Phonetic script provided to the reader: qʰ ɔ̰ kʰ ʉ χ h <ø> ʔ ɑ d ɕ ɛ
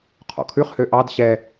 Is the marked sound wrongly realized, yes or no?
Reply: no